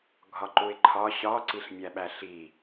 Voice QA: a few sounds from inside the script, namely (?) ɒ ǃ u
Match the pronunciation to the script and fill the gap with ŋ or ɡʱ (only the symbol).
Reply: ɡʱ